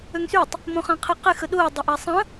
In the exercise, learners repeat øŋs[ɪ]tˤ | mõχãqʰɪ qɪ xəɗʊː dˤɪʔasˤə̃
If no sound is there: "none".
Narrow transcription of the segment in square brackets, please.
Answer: y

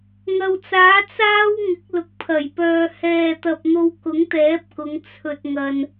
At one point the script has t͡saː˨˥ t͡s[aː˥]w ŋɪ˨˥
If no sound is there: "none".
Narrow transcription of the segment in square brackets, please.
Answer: aː˥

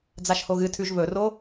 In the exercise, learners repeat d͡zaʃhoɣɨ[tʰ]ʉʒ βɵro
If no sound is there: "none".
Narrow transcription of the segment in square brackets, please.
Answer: tʰ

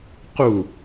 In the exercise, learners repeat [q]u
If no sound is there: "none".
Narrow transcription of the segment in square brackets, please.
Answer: q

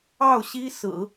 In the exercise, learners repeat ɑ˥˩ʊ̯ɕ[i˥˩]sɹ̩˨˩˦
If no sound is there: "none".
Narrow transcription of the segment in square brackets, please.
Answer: i˥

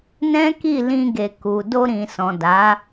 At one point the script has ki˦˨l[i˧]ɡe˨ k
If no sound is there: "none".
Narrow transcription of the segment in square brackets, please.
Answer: ĩ˧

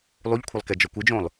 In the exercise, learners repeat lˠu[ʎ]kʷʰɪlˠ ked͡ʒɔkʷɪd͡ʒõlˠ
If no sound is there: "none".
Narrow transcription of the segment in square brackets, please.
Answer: ʎ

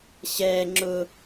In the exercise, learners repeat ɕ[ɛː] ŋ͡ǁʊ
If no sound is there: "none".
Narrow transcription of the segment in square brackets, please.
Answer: ɛː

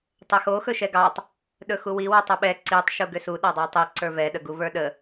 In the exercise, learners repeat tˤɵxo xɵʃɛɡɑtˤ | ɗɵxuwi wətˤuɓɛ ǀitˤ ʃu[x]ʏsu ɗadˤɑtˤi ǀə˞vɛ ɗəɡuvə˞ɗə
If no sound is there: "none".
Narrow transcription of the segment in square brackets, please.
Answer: ɡ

